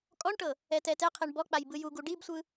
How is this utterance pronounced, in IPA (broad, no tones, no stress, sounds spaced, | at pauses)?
kʼ ɔ ɳ ʈ ɤ | ɛ t ɛ t ɛ qʰ e ɳ b ɔ k͡p a j b ɯ j u ɡ u ɖ i b sʷ ɯ